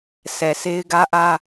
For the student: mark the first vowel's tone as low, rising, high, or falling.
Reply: low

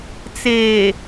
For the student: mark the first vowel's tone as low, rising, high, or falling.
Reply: low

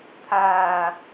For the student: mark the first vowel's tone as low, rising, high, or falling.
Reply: low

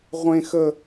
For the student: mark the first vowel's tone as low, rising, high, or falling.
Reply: high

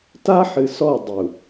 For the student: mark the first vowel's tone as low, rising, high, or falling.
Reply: high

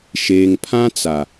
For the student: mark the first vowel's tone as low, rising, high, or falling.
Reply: low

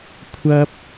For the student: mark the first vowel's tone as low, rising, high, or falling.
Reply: high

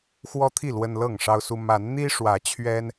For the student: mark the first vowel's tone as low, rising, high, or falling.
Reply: high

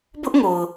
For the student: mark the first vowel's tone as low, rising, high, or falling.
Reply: high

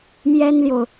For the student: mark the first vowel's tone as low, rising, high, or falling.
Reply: high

